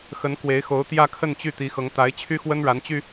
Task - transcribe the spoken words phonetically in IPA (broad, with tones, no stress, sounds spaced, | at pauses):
x ə˧˥ n k w e˧˥ ɪ̯ x o˧˥ ʊ̯ t̪ j ä˥˧ kʰ ə˥˧ n t͡ɕ y˥˩ t̪ i˧˥ x ɤ˧˥ ŋ t̪ a˧˥ ɪ̯ t͡ɕʰ y˥ x w ə˥ n ɻ a˧˥ n t͡ɕ y˧